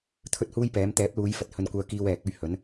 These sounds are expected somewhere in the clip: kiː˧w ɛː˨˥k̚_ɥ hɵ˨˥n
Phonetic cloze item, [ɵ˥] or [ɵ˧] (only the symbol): ɵ˥